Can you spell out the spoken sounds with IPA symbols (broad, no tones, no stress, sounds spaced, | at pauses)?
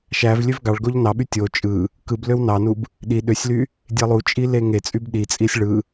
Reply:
ʃ æ v lʲ ø v ɡ ɑ ɭ ɡ o ʎ n ɑ ɓ y tʲ o t͡ʃʼ ɯ | k ɯ b l ø w n ɑ n u b | ɗ i ɗ ø sʲ l y | dʲ e lˠ u t͡ʃʼ i l e ŋ e t͡sʼ y b ɗ i t͡sʼ i sʲ ɭ ɯ